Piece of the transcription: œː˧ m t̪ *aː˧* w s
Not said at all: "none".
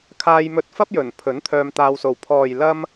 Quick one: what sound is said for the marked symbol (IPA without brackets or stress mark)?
aː˧